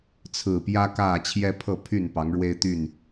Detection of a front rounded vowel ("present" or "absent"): present